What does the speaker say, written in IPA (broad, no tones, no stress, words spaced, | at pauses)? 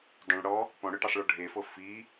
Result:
dˤœ̃ɭ ɽɔ | pɔ̃ɽœʈisˤɭɔ ɖʱefɤ fi